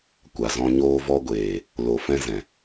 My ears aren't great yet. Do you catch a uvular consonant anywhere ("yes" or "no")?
no